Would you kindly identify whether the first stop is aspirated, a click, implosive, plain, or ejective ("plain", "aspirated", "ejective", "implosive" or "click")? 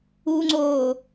click